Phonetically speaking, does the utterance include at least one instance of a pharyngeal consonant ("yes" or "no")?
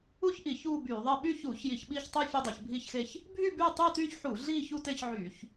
yes